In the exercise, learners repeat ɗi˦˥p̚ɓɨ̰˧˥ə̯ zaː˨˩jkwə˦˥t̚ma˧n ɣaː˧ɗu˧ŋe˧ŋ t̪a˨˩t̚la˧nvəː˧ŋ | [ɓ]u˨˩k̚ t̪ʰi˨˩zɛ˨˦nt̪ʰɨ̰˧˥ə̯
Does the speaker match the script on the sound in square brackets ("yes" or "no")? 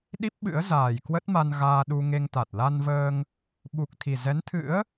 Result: yes